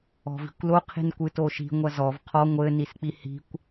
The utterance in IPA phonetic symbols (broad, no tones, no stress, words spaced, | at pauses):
ɔ̤vi̤kʷlo qʰi̤nkʷɨtoʃi̤ ŋʷɐzɔv qʰɔ ŋʷɘ nisk͡pihi̤kʷ